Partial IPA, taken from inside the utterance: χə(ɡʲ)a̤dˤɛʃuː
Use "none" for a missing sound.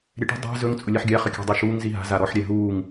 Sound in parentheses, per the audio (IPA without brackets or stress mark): kʲ